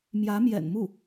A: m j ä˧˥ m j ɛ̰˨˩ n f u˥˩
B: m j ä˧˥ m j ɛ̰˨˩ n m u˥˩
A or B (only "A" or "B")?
B